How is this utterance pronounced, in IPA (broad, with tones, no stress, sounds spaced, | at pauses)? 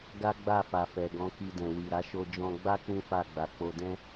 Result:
ɡ a˦ ɡ͡b a˦˨ f a˨ f ɛ˨ ɡ ɔ̃˨˦ k i˧ d ɛ̃˨ w i˨ ɾ a˨˦ ʃ o˧ d͡ʒ ɔ̃˧ ɡ͡b a˦ k͡p ũ˦ f a˦˨ ɡ͡b a˨ k͡p o˧ d ɛ̃˦